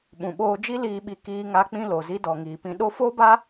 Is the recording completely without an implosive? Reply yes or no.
no